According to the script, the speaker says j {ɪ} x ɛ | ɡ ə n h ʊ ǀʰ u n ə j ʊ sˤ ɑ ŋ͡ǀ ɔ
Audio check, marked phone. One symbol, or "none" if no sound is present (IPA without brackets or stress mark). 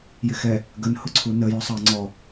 ɪ